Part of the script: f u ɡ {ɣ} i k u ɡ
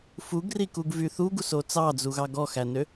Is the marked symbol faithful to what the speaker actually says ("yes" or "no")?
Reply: no